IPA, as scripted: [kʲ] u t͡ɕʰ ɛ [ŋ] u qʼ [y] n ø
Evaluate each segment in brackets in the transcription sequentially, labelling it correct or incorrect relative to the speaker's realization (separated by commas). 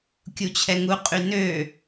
correct, correct, correct